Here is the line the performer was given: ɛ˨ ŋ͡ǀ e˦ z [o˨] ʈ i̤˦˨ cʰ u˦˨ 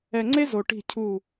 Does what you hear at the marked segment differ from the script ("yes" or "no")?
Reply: no